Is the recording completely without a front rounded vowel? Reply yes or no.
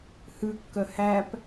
no